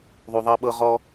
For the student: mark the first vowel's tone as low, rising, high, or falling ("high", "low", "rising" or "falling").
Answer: low